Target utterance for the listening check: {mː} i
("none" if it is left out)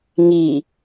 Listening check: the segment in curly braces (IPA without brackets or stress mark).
ŋ